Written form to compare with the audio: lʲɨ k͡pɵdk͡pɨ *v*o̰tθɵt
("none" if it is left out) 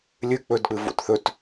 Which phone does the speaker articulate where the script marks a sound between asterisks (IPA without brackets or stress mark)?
v